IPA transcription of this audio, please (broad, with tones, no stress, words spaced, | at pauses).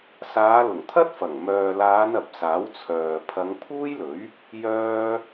saː˨˧lʊ˨˩ŋt̪ʰɐ˥t̚ fɐ˨˩ŋ mœː˨laː˨˧n ɐ˨p̚saː˨˥wt͡sʰœː˨ pʰɐ˨˧ŋpʰuː˥jlɵ˨˥ɥ | jœː˥